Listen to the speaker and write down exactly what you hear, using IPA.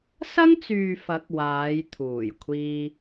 sɐ˥ŋt͡syː˨ fɐ˨˥k̚ waː˨˧jt̪ʰuː˨˩jkʷʰiː˧

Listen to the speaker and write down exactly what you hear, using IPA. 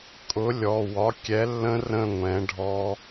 kʼʊ˨˥ lʲɔ˩˧˩wɒ˨˥kʲɛ˨˥lːə̃˦˥ rə̃˥˧ŋʷɛ̃˨˥ɖʱɔ˦˥

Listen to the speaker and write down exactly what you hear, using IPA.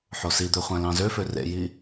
ħosid̪ø χʷæ̃lɑ̃zøfø rḛji

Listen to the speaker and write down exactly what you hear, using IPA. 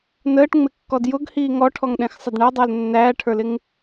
nəːʈŋ͡mɪkːɔd jʊɡhiː ŋɔʈʰɔŋɗɛ̃xsˤɪd ɳædˤəːl nːæːʈʰə˞lɪŋ

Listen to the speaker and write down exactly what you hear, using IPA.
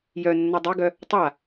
jœnːa dˤeɡœ | tˤa

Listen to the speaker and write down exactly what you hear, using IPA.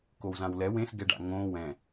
kowzãwlɛ wẽs ɡɛɖa̰ŋõ wɛ̃

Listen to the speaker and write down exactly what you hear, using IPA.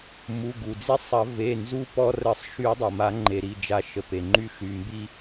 mu˩˧˩ɡu˩d͡zi˧sˤɐ˨˩˦ ve˩˧˩nzu˧ pɔ˧rə˨˩˦sˤ ʃy˨˩˦dˤɐ˩ma˨˩˦ŋ͡ǃe˩ ɾi˩˧˩d͡ʒa˨˩˦ʃə˩ pe˩ŋ͡ǃy˧ʃy˩˧˩ mbi˧

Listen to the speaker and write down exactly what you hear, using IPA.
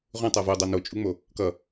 ʁũ tˤavo dˤanot͡ʃʼuŋ͡mo | kʌ

